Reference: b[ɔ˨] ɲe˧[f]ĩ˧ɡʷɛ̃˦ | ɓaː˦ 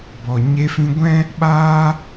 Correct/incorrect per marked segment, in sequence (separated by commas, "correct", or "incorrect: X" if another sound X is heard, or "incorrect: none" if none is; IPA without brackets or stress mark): correct, correct